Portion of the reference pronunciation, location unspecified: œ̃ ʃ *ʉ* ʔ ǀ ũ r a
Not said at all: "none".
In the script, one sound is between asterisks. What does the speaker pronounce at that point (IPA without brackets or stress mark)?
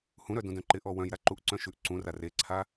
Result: ʉ